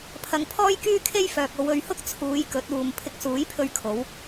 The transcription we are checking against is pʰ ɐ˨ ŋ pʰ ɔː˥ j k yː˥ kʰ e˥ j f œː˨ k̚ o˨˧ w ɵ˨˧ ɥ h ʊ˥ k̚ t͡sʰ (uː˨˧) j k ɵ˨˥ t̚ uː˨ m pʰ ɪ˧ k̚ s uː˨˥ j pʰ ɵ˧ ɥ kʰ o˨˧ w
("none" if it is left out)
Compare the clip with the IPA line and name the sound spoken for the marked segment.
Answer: uː˨˧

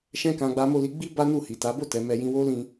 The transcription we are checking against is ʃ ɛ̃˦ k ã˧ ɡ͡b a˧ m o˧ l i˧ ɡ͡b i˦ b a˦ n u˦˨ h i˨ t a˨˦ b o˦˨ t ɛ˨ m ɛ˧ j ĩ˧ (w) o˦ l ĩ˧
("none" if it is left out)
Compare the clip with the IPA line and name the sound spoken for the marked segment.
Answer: w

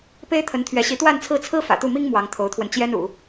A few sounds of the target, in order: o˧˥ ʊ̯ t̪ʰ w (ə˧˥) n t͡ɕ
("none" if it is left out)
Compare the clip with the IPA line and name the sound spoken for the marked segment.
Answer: ə˧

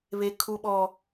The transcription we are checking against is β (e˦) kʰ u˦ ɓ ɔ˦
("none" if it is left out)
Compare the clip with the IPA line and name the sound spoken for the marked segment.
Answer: e˦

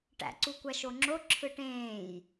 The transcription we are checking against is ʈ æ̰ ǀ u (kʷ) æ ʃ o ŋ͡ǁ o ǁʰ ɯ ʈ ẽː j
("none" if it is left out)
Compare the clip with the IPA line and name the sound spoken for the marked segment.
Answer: kʷ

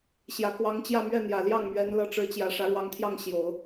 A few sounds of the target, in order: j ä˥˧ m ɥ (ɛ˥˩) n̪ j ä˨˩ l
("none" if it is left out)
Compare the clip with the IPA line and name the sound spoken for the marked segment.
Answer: ɛ˥˩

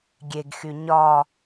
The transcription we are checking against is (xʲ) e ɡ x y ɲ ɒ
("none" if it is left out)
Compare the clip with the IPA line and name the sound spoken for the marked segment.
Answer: ɡʲ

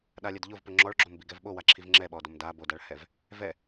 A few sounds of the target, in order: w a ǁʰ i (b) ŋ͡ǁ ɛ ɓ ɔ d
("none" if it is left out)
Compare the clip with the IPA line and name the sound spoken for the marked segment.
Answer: v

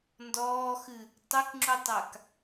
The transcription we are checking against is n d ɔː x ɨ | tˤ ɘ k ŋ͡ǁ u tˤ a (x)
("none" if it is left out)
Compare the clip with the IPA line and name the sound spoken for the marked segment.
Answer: k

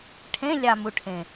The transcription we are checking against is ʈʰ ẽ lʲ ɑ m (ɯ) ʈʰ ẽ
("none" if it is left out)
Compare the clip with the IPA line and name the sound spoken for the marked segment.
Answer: u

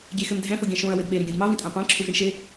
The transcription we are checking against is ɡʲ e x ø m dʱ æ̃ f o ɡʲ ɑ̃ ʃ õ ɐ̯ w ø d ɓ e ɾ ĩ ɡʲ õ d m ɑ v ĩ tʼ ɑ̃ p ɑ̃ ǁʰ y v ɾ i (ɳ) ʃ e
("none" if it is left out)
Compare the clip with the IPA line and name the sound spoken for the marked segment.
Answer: ɳ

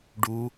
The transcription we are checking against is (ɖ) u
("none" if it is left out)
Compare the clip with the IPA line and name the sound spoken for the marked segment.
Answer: ɖ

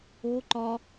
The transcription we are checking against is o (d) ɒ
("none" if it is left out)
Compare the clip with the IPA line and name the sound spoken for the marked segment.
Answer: ǃ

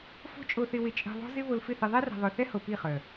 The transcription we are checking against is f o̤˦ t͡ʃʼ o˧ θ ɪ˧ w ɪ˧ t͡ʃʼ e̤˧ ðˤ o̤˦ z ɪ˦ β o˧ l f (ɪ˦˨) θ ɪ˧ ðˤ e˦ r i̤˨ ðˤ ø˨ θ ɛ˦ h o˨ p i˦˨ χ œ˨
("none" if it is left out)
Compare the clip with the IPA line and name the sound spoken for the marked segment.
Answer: ɪ˦˨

